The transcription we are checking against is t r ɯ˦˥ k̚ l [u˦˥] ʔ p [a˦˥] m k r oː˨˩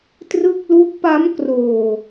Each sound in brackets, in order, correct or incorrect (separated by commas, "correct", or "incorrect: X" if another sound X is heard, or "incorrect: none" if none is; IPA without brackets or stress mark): correct, correct